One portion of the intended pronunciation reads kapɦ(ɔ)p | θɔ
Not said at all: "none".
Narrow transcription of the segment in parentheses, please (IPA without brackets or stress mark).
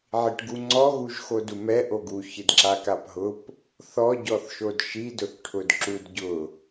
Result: ʊ